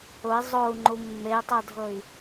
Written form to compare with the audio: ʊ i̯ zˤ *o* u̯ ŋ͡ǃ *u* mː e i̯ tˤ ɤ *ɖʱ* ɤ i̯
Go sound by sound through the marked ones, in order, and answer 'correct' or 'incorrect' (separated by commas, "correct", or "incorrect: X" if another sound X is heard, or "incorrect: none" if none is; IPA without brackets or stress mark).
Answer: correct, correct, incorrect: dʱ